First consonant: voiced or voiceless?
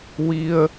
voiced